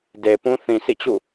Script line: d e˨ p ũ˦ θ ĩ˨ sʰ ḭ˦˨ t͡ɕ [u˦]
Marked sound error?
yes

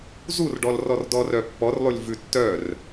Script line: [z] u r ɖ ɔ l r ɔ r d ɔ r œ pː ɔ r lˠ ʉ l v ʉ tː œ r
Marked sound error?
no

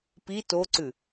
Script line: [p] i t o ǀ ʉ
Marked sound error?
no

